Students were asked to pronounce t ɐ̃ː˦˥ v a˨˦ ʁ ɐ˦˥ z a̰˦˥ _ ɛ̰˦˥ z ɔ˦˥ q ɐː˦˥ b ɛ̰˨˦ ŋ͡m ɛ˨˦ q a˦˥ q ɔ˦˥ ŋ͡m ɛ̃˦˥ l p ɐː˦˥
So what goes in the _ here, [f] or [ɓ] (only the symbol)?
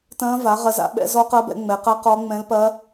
ɓ